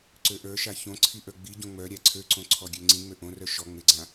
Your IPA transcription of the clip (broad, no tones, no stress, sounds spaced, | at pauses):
ǀ ø ʔ ə˞ ʃ a ç õ ǀʰ i ʔ ə˞ ɡ͡b i ɟ õ ŋ͡m œ ɾʲ a ǀʰ ø ǀ õ ǀʰ ɔ ɡʲ ø ŋ͡ǀ ĩ ŋ͡m ø ʔ õ r œ ʃ ɔ ŋ͡m ɪ ɡ͡ǀ ã